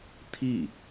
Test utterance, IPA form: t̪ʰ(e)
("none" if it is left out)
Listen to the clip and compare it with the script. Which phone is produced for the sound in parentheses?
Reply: i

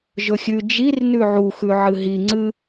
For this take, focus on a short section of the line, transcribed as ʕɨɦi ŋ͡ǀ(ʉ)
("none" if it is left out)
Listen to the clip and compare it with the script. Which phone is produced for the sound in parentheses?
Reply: ɨ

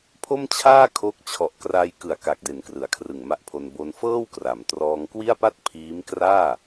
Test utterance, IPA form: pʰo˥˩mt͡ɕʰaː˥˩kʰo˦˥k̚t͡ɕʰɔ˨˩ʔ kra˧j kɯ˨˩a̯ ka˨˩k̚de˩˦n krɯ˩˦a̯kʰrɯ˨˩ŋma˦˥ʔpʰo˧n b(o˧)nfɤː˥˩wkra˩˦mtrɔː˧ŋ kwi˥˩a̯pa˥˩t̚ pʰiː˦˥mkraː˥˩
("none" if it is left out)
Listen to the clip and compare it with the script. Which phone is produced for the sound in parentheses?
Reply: o˧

